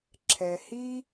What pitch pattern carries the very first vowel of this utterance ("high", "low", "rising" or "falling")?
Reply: low